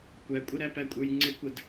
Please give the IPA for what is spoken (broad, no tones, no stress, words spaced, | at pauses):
kʷækʷʼə ɾæpækʷʼə˞jŋ͡ǀɪ kʷəd